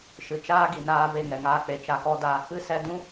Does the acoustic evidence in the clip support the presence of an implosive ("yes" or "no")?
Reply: no